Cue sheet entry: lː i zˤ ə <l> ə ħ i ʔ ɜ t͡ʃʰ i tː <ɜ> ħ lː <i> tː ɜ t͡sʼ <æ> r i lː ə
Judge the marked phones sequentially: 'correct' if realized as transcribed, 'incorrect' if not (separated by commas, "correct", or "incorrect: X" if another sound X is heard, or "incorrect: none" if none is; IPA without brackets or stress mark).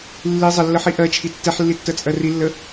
incorrect: lː, incorrect: ɛ, correct, incorrect: ɜ